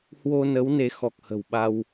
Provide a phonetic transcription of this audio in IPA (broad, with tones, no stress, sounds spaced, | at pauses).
h w o˧ n ə˨˦ w n e˨˦ x ɔ˨˩ k̚ h ə̤˨˩ w ɓ a˧ w